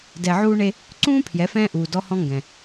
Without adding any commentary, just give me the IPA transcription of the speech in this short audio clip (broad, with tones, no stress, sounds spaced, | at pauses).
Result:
d ɛ˨ ʕ uː˧ ɳ e˧ | ǀ ũː˦ pʰ j ɛ˨˦ f ɛ̃ː˦ ʔ uː˨ d ɔ˧ h ɔ̃˧ ŋ ɡ ɛ̃˨